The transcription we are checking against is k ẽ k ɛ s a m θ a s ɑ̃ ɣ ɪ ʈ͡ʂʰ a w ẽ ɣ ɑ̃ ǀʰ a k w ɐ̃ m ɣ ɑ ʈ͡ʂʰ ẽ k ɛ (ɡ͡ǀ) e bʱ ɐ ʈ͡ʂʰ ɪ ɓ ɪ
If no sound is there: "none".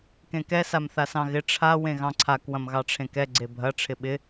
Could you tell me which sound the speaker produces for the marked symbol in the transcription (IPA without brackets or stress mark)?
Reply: ɡ͡ǀ